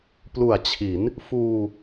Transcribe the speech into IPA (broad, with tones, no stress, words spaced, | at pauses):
plu˨˩a̯t͡ɕʰi˩˦n | fuː˧